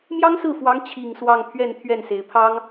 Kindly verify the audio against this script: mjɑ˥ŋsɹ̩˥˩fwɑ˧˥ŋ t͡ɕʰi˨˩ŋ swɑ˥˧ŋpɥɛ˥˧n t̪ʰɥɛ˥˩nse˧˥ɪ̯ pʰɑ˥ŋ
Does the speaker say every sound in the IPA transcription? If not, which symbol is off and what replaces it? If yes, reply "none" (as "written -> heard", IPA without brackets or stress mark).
p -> pʰ